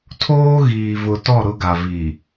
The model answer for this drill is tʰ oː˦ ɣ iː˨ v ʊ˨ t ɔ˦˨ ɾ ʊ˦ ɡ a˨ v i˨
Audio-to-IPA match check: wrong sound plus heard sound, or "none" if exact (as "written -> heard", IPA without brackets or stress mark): none